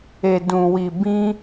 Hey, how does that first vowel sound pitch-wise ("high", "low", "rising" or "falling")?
low